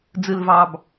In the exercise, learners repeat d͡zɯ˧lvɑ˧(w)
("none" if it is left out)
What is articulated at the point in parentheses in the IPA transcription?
b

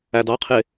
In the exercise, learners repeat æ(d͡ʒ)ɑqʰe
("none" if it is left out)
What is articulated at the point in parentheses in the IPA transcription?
d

